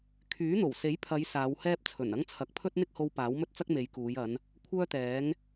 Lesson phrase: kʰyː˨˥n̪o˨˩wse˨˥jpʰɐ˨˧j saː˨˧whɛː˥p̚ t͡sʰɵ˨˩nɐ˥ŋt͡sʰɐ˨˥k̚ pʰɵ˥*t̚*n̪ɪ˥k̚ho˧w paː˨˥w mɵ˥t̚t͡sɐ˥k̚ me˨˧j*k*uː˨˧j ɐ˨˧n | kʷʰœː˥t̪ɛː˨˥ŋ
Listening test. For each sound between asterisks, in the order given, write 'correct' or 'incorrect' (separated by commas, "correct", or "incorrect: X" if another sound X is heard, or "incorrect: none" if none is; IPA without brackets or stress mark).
correct, correct